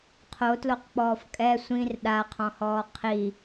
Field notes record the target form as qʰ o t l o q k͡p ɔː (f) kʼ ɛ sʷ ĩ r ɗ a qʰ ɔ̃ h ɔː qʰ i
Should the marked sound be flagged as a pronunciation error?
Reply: no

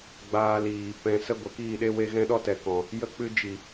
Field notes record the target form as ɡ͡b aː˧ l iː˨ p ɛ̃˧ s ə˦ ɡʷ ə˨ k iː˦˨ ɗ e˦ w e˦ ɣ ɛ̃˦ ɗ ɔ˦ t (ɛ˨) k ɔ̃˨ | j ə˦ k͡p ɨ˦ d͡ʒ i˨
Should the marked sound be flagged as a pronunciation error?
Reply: no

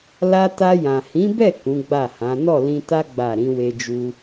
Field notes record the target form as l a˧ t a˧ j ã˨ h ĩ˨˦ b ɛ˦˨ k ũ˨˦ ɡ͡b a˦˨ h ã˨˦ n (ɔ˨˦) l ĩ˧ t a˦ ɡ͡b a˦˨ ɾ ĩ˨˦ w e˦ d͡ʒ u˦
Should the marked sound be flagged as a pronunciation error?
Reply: yes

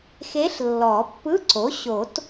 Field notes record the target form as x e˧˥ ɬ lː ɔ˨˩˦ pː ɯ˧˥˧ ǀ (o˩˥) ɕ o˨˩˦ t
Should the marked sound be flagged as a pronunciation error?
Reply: no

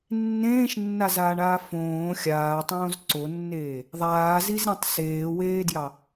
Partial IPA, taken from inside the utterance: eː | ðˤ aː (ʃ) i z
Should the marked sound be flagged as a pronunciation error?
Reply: yes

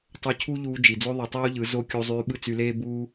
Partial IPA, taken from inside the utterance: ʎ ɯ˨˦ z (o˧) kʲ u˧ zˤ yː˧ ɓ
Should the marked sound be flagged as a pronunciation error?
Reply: no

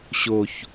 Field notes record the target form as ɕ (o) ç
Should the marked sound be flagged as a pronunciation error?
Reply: no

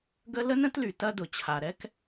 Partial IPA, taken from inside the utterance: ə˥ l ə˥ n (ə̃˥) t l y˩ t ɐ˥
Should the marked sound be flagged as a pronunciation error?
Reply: no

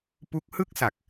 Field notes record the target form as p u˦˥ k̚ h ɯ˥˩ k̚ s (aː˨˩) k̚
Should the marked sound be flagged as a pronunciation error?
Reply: yes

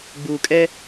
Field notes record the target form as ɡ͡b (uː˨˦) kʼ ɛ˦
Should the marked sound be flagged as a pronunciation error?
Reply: yes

